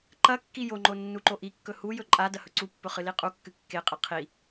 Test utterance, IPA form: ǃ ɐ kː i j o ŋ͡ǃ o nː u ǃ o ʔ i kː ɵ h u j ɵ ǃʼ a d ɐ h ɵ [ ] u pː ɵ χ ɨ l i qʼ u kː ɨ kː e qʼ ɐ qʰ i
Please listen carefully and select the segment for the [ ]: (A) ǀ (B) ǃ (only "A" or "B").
A